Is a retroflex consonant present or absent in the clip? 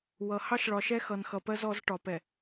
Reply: present